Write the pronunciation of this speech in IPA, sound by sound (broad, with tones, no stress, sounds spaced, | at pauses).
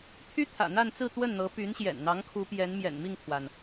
t̪ʰ y˥ t̪ʰ ä̰˨˩ n̪ a˥˧ n t͡s ɹ̩˥˧ t̪ w ə˥˩ n n̪ ɤ˧˥ p y˧˥ n ɕ j ɛ̰˨˩ n n̪ ɑ˧˥ ŋ kʰ u˧˥ p j ɛ˧˥ n m j ɛ̰˨˩ n m i˥˩ ŋ t̪ʰ w a˩ n